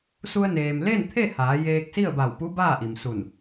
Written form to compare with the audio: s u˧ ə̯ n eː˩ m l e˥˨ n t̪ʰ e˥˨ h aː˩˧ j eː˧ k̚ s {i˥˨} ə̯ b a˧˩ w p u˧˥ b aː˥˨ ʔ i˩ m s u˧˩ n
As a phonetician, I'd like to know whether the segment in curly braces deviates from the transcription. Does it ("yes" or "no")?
no